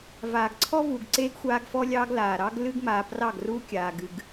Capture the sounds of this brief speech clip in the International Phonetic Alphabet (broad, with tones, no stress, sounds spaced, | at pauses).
v aː˨ ɡ ǀʰ ɔ˦ v uː˨ ɡ ǀ eː˦ ɡ xʷ aː˦ ɡ f ɔ˦ lʲ ɑː˦ ɡ l aː˨ ɾ ɑ˦ ɡ l ɨ˦ ɡ m aː˨ p r ɑ˦˨ ɡ r uː˦ kʲ aː˨ ɡ ɨ˨ ɡ